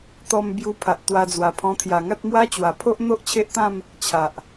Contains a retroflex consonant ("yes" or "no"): no